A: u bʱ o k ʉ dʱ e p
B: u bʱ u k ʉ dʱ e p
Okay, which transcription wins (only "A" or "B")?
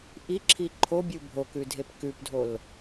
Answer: A